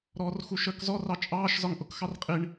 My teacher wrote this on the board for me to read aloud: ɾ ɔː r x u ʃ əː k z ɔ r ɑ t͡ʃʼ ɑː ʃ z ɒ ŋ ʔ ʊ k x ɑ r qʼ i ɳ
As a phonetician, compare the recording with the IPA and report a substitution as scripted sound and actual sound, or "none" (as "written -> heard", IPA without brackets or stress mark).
none